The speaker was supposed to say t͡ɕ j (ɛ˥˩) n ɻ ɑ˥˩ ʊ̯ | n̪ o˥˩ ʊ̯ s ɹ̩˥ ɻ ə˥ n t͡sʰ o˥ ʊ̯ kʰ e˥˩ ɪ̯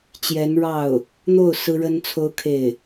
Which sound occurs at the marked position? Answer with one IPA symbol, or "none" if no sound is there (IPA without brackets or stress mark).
ɛ˧˥